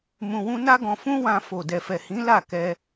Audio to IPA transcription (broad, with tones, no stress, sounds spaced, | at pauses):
m ũ˧ w ũ˦ n a˦ ɡ ɔ̃˧ f ũ˦ w ã˧ f o˨ d ɛ˨ f ɛ˨ h ĩ˨˦ l a˦˨ k ɛ˧